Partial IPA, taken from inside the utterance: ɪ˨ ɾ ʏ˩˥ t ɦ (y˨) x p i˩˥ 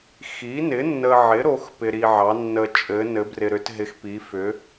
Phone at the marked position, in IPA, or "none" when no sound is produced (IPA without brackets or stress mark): ɪ˨